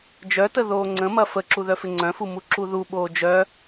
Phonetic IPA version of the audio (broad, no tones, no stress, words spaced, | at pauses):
d͡ʒœtə ðoːŋ͡ǀə̃mɐ fəǁu ðœfɪŋ͡ǀœ̃fu muǁuðuɓoː d͡ʒœ